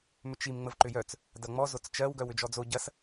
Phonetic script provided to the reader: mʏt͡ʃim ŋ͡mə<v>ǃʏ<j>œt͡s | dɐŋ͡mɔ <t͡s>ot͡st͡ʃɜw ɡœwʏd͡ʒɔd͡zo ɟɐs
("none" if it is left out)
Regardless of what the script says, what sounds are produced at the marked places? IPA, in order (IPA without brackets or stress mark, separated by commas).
v, j, z